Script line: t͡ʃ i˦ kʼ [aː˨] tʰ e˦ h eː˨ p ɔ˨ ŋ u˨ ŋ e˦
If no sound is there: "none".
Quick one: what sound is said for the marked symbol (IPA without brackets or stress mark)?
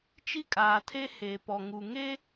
aː˨